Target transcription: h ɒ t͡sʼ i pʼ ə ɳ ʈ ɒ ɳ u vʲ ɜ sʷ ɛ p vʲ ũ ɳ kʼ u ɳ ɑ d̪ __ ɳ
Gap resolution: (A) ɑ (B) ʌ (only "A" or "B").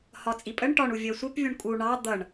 B